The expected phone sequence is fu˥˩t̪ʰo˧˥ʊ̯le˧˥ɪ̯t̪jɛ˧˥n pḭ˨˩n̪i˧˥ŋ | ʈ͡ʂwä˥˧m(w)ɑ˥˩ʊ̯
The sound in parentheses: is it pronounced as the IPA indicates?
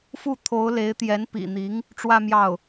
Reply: no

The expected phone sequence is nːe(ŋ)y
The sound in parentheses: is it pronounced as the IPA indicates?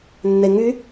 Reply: yes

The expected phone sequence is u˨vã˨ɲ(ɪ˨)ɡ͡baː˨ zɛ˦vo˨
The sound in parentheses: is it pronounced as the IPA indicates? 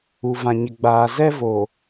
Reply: yes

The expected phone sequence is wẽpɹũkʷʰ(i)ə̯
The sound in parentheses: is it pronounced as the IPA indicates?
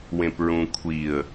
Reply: yes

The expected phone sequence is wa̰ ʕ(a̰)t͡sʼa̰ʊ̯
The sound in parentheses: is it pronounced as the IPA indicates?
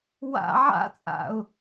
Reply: yes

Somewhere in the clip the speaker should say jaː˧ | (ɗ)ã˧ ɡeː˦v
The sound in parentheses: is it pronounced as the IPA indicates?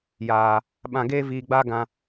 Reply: no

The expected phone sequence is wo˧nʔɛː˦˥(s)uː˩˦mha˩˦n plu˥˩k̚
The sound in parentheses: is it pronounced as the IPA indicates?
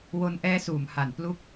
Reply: yes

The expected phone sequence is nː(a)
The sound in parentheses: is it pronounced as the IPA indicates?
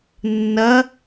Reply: no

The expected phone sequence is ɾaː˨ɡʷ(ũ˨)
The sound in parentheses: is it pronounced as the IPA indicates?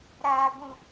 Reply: yes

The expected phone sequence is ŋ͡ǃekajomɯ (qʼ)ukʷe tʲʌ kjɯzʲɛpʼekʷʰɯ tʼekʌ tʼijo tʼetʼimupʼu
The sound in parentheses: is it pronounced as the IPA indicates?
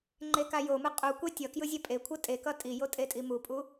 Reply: yes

